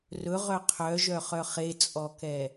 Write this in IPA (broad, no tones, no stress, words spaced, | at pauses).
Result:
rɵʁœ qʰœʒœχœ χet͡sʼɔkɛ